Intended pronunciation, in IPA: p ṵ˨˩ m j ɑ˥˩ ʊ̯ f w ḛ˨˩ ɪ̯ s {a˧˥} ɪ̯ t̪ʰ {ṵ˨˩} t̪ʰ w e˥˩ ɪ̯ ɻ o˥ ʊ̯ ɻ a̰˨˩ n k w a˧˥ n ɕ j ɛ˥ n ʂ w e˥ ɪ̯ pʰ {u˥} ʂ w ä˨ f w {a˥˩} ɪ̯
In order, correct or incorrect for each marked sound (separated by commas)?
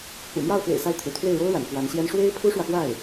correct, correct, correct, correct